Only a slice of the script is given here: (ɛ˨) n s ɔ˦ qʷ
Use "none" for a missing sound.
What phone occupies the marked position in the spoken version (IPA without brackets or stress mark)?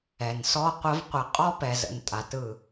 ɛ˨